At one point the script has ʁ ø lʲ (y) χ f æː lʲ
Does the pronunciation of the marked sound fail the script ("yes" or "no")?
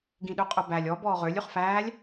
no